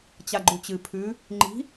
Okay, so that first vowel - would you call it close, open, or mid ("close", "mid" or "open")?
open